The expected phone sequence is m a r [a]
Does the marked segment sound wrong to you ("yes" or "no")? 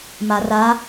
no